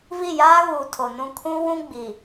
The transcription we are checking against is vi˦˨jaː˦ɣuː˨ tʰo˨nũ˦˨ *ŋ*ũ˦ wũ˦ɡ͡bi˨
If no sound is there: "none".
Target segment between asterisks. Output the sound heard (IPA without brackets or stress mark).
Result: kʰ